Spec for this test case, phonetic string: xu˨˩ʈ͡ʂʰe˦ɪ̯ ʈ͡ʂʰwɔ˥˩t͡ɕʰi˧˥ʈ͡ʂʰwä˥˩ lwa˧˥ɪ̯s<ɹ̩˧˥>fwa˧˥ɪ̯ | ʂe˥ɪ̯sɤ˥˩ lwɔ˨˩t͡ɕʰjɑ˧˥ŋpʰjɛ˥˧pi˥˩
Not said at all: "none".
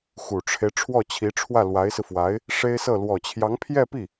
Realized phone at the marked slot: ɹ̩˧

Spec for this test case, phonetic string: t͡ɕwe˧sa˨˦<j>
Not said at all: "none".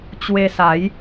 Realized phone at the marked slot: j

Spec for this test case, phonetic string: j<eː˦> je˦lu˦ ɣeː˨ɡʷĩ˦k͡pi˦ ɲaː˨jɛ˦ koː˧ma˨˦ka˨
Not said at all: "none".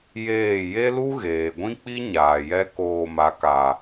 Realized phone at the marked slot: eː˦˨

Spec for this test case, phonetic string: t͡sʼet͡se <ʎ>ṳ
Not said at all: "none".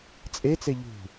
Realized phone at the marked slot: ʎ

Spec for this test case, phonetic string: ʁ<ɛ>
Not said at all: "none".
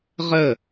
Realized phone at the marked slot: ə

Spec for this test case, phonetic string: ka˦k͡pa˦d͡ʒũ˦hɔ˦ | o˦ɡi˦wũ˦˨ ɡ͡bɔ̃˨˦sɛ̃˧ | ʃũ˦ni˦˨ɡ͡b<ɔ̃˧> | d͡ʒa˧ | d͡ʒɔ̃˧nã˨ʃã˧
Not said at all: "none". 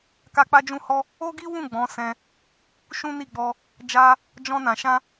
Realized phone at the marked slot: ɔ˧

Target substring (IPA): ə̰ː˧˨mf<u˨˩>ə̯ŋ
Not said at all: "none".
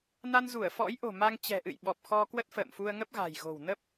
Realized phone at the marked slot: u˧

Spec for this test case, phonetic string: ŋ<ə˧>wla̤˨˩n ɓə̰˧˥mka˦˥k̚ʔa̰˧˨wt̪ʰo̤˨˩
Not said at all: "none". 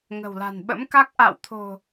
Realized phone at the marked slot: ə̤˨˩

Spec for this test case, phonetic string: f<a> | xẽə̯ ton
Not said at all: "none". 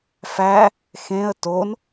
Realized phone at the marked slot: æ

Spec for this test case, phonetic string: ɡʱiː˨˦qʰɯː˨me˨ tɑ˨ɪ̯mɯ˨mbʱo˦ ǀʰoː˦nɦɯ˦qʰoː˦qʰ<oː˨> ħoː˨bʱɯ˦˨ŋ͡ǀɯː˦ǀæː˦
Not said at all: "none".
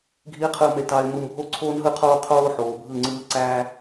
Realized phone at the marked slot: oː˦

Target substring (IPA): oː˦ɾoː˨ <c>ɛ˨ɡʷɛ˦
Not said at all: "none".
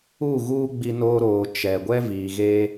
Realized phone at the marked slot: t͡ʃ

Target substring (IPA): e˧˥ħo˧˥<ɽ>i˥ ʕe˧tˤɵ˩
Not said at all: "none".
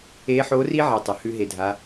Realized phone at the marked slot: r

